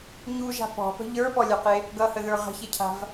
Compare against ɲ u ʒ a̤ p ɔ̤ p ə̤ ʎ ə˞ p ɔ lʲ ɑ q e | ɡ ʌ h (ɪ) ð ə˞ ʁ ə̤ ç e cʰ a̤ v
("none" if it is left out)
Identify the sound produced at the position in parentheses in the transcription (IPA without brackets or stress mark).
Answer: ə